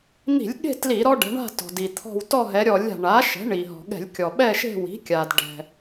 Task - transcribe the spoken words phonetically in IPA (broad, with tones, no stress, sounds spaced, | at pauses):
n̪ i̤˧˩˧ lʲ ɠ e̤˦˨ t l i˧˩˧ ɾ ɔ˦ ɖ ɛ̤˩˧ ɳ a̤˦˨ t ɔ̤˩ d i˩ t̪ʰ ɔ̤˦˨ w t ɔ˦˨ ɦ ɛ˩˧ ɾʲ ɔ˧˩˧ lʲ a̤˩ ɳ a˩˥ ʃ ɛ̤˩˥ ɳ i˩ ɦ ɔ̤˩ ɠ ɛ̤˧˩˧ lʲ kʲ ɔ˩ ɓ ɛ˦˨ ʃ e̤˦˨ w i̤˩˥ kʲ a˩ d ɖ ɛ̤˩